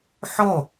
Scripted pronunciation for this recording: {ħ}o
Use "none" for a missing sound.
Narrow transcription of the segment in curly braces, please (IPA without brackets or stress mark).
ħ